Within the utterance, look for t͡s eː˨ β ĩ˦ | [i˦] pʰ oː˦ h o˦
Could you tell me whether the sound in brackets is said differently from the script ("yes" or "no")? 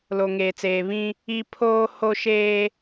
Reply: no